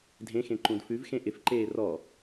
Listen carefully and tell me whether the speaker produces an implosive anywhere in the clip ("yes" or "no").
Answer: no